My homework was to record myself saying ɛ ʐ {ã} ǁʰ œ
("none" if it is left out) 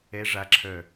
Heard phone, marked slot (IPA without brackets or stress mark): a